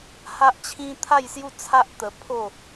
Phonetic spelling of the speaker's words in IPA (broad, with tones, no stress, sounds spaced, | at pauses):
h a˦ ʔ t͡ɕʰ ĩ˦ t̪ʰ a˥˧ j s j u˥˧ t͡sʰ a˦ ʔ t̪ ə˧ pʰ o˥˧